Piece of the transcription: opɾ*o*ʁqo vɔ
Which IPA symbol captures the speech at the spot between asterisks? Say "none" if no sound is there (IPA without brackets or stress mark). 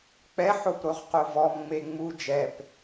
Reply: o